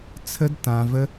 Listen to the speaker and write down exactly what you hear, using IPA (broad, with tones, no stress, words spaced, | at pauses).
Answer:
t͡sʰə˦dtã˧və˦